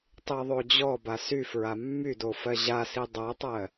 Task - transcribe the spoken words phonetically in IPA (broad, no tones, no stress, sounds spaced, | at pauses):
tˤ i ðˤ o d͡ʑ ɔ b a s y f ɹ a mː y d o f ɜ ʑ a s i dˤ ɜ tˤ ɜ